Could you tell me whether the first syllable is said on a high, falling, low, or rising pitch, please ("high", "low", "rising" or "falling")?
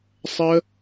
high